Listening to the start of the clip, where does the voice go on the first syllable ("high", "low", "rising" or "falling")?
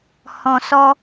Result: low